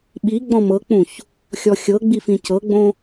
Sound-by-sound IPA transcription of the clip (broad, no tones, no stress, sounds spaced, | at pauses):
ɓ i ɡ͡b ɔ̃ m ɤ k͡p ũ ç | xʲ ɔ xʲ ɤ ɡ͡b i f ĩ c ɤ ɡ͡b õ